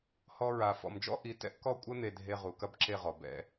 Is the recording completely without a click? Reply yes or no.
no